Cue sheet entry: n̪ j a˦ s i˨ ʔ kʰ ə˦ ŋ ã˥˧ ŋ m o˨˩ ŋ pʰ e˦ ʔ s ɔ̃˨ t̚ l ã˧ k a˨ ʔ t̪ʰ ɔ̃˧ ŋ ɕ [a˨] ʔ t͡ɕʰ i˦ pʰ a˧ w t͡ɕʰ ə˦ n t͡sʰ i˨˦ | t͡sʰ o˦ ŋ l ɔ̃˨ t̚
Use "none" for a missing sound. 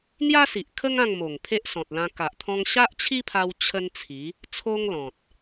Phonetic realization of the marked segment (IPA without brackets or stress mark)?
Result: a˦